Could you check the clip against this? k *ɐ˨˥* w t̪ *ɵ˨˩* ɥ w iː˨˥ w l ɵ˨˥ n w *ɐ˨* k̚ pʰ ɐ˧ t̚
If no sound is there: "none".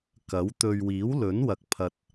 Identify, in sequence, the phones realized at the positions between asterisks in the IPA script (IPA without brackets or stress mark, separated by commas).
ɐ˨˥, ɵ˧, ɐ˨